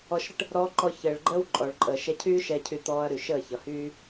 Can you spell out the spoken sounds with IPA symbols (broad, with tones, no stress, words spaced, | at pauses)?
ɔ˧ʃɾə˦ʈ | ɾɔː˧ǃɔ˧ çəː˨ɭɡ͡ǃəː˦wǃʼɔ˨ɭǃʼəː˨ ʃɛ˧cʰyː˦ ʃɛ˧cʰy˧t̪ɔː˧ɐ̯ ɾy˨ʃəː˦˨çʌ˨ hyː˧